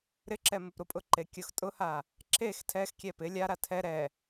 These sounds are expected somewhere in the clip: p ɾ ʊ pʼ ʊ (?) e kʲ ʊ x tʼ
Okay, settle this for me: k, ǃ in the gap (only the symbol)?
ǃ